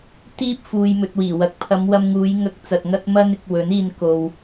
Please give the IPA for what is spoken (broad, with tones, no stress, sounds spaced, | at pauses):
t̪ iː˥ p̚ f uː˨ j m ɵ˨ t̚ w iː˨˩ w ɐ˨ k̚ pʰ ɐ˨˧ m w ɐ˧ m ŋ uː˨˧ j ŋ ɐ˧ k̚ t͡s ɐ˨ t̚ ŋ ɐ˥ t̚ m ɐ˥ n ɪ˧ k̚ w ɵ˨˥ n iː˧ n k o˨ w